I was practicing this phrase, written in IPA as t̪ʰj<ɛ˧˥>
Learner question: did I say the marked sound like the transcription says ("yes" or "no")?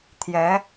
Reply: yes